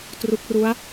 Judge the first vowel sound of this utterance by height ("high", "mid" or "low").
high